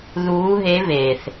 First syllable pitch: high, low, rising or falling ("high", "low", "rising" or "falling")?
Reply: rising